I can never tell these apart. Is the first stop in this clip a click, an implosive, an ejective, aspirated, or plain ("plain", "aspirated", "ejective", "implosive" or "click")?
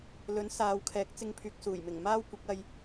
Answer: aspirated